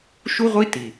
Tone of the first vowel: high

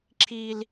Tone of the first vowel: high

